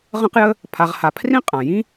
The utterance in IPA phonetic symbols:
ʁə̃˦qjə˦ | pʰa˨ʁha˨pʰrĩ˥ qʼã˩jĩ˥

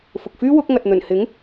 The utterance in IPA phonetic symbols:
fʊ˨k̚fyː˥ wʊ˨˥k̚ŋɐ˨t̚ n̪ɵ˨˩nhɪ˨˥ŋ

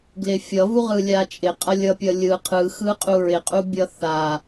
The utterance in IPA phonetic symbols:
ɡlɪfʲʌ vuʁɯlʲat͡ʃʼɪ qʼʌlʲʌpʲʌlʲɯ qʰɯ xɯqʼuɹɪ qʼubʲʌθa

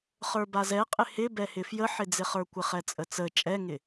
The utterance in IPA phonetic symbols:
χə˞bazɛqʼɪ hɪbɛhɪ fjəħɪd͡zɪχə˞ kʷɪχɛt͡sʼət͡sə t͡ʃʼɛŋɪ

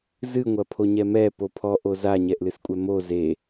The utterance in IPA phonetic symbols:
zɨŋʷɐpʰoɲɛ mɛpo pʰɔʔo zaɲɛʔlɨskʷʼɛ mo ze

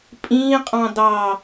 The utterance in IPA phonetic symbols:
pʼĩː qʼɑ̃dɑ

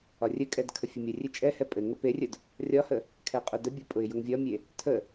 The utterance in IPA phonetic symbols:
ɒrʲɘkʼɛd kʰəfʲəmʲərʲe t͡ʃʼɛhɛ pʼɘŋə perʲəd | rʲɒhə | kʰɛqʼʊdəbʲɒ pʼʊɪ̯jʊŋvʲɒmʲe | tʰə

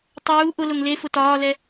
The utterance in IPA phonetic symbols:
tˤuː ʔʊlʊŋ lefʊ tɒːlɛ

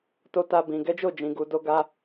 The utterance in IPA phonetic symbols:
to˧ ta˦bĩ˧ ɡɛ˦d͡ʒo˦˨ d͡ʒĩ˧ɡu˧do˦ ɡa˧

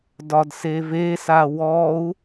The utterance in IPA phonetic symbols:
dɒdseve sawɔu̯

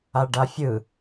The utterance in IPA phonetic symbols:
aɖafʲɯ

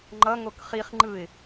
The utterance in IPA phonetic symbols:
ŋ͡ǃʌ ŋokχiχ ŋ͡ǃɯɪ̯

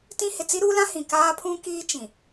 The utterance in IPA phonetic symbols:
tĩ˦ hɪ˨t͡si˦ɾuː˦lã˦ hĩ˨kaː˦pʰũ˦kiː˦ t͡ʃĩ˨

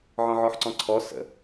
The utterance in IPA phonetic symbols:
ʕɔ̃ʕɔħǀɔ̃ǀʰɔ sə̰

